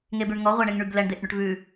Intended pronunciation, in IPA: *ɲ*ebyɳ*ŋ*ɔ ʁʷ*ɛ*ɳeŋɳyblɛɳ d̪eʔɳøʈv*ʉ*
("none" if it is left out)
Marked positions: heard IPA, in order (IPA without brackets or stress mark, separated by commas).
ŋ, ŋ, æ, ʉ